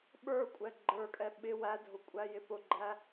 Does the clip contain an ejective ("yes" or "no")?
yes